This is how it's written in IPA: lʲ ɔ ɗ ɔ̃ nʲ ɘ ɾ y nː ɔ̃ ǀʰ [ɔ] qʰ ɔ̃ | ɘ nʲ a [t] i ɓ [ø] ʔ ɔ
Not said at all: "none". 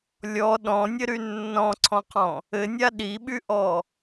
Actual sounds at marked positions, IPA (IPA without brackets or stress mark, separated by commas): ɔ̃, ɗ, y